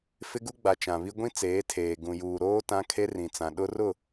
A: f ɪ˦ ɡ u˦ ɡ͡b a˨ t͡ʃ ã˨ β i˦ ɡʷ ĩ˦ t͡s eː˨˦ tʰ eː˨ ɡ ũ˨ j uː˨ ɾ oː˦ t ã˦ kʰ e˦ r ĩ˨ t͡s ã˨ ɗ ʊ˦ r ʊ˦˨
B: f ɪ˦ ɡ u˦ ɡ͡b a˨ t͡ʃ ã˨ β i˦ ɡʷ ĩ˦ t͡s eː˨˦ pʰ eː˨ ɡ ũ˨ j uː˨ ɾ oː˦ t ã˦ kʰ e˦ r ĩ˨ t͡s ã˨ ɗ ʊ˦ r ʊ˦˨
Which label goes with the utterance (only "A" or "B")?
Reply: A